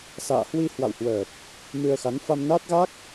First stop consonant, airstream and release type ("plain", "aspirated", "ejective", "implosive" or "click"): plain